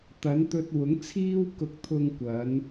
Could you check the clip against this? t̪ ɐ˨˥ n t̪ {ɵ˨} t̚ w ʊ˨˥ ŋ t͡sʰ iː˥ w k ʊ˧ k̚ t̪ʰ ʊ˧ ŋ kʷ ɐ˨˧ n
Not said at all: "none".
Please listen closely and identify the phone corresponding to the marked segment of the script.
ɵ˧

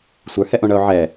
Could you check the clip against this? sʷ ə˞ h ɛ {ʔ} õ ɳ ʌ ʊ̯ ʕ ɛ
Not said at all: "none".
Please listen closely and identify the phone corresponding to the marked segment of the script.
ʔ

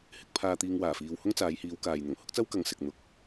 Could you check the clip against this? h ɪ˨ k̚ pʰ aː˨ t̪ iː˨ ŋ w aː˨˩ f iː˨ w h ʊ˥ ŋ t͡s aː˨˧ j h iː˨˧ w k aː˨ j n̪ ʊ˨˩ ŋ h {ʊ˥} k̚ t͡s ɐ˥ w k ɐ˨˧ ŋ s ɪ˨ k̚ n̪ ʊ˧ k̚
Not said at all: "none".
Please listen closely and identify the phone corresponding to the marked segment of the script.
ʊ˥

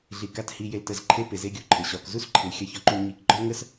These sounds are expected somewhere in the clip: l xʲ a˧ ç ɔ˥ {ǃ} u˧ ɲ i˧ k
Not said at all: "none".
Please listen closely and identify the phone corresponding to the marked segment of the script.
ǃ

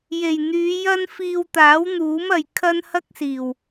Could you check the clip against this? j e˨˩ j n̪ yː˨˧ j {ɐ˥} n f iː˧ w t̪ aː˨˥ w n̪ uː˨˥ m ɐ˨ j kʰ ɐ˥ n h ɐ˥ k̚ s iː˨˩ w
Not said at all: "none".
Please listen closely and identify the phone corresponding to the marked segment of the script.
ɐ˥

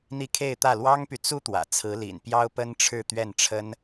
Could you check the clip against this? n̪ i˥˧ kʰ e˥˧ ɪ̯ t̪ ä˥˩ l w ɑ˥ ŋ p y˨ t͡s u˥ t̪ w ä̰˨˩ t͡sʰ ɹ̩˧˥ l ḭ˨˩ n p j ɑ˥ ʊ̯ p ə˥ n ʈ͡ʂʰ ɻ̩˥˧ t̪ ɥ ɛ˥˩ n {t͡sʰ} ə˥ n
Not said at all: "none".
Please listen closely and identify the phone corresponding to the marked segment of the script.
ʈ͡ʂʰ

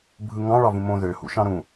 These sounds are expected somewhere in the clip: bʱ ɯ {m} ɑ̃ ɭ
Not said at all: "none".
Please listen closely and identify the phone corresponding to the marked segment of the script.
ŋ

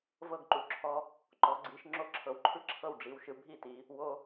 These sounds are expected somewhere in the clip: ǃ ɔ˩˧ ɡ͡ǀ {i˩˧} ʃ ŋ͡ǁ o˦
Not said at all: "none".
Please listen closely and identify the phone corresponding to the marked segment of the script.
i˩˧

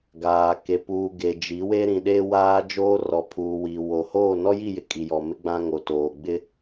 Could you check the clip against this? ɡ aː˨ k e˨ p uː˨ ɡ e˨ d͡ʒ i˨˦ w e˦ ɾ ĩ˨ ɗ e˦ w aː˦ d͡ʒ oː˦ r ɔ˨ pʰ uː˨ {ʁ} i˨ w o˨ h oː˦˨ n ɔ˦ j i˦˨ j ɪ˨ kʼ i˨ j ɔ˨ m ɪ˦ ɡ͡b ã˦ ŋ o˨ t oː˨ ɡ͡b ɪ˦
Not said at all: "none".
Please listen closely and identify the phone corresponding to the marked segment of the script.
w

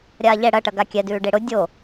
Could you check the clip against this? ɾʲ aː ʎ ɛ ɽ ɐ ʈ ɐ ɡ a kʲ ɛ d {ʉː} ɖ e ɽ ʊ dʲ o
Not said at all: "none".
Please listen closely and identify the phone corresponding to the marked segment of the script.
ʉː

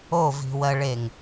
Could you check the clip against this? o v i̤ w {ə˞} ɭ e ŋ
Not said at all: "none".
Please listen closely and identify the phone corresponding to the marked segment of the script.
ɜ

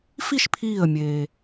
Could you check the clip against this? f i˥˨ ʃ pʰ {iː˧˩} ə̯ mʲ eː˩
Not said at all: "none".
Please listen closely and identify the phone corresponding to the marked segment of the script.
iː˧˩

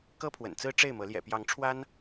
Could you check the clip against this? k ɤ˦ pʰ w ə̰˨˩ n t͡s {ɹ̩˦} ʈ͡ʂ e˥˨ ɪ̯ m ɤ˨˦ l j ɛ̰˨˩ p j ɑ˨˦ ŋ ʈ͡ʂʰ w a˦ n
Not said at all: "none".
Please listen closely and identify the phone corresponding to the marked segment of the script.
ɹ̩˦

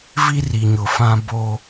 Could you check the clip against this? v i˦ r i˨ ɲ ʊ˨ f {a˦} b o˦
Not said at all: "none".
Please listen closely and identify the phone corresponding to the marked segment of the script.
ã˦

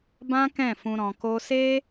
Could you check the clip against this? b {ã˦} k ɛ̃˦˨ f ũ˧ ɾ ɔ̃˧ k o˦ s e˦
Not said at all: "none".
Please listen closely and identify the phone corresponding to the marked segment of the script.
ã˦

